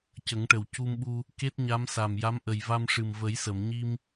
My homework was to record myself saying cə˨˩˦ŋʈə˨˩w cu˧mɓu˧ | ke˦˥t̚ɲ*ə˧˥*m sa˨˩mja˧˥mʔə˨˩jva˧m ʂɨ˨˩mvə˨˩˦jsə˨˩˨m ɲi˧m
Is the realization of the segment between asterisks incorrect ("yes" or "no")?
yes